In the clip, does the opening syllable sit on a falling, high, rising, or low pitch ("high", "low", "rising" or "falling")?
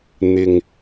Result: low